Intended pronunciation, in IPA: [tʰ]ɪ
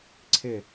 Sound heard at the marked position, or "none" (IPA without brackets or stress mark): ǀʰ